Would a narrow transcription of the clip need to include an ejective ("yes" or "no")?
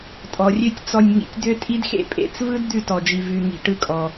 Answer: yes